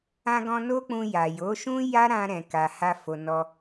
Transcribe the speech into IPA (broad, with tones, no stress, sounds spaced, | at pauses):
ã˧ ɡ ɔ̃˧ n o˦ k͡p ũ˧ j a˨ j o˨˦ ʃ ũ˦ j a˦ ɾ ã˧ ɾ ɛ̃˨ k a˨ h a˧ f o˨ n ɔ˧